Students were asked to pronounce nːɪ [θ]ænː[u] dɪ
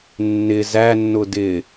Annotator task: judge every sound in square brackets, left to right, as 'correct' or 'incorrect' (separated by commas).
incorrect, incorrect